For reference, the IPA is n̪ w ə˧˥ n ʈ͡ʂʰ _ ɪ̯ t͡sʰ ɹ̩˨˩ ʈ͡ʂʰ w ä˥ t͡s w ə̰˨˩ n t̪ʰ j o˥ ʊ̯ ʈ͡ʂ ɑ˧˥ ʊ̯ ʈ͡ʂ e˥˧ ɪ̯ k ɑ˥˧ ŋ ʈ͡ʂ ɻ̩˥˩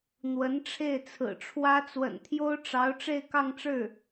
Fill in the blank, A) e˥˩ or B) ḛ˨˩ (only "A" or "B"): A